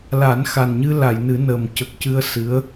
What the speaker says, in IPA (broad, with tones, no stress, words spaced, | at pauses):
la˨˩˦nxa˨˩nɲɨ˧ la˨˩˨jnɨ˨˩˦ nə˨˩m cə˨˩k̚cɨ˧ə̯ sɨ˧˥ə̯